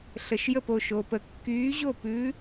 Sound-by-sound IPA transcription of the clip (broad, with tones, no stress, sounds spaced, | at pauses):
ɬ ə˩ ʃ j ə˥˩ p o˥˩ ʃ o˩ p ə˩ kː yː˨˥ ʑ o˥˩ p ʉː˨˥